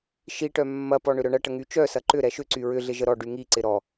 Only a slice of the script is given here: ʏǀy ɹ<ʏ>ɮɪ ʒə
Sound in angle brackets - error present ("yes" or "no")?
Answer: no